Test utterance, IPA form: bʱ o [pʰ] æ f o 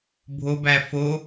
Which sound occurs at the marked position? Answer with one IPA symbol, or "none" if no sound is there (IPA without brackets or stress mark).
b